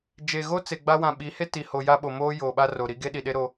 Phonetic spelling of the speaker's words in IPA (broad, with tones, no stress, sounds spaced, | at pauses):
d͡ʒ e˨ ɣ o˦ t͡s e˨ ɡ͡b a˦ w ã˨ ɓ i˨˦ h e˦ t i˨ h o˨ j a˦ ɓ o˨ m oː˦ j oː˨ ɓ a˦ r o˨ ɾ i˦ ɡ e˦ ɗ i˨ ɗ e˦ ɾ o˦